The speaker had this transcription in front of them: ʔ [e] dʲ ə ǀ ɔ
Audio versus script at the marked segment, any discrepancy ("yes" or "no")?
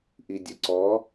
yes